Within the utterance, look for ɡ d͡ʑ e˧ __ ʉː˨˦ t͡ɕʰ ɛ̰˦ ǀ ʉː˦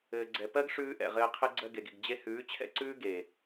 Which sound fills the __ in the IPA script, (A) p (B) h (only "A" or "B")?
B